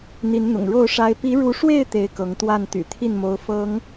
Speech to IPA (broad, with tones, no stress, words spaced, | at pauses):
n̪i˨˦nn̪ʊ̰˨˩ŋ ɻo˥˨ʊ̯ʂa˦ɪ̯ pi˨˦ɻu˨˦ʂwe˥˨ɪ̯ t̪e˦ɪ̯kɤ˨˦ŋ t̪wa˥˨n t̪y̰˨˩t̪ʰi˥˨nmo˨˦ʊ̯ fɤ˨˦ŋ